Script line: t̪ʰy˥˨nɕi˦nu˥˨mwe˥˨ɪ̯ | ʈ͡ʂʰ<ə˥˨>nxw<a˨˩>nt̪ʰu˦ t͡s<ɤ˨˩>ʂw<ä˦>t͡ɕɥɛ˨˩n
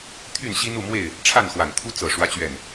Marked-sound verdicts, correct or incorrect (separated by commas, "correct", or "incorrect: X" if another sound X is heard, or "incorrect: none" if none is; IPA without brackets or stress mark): incorrect: a˥˨, correct, correct, correct